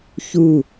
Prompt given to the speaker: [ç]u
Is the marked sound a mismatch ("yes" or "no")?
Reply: no